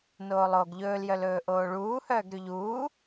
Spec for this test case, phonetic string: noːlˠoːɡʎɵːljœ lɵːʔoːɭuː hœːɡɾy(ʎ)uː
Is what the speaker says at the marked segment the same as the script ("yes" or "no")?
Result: yes